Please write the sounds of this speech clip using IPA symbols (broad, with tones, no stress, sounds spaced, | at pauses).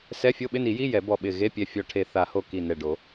s ɛ˧˥˧ fʲ o˧˥˧ ɓ ɪ˧˥˧ n i˨˩˦ j i˧˥˧ j ɛ˨˩˦ b ɔ˧˩ ɓ ɪ˧˩ ɣ e˧˥˧ pʲ ɛ˧˩ fʲ ɔ˧˩ ʈʰ e˧˩ θ a˨˩˦ h o˧˩ k i˧˩ n ɛ˧˩ ɖ o˨˩˦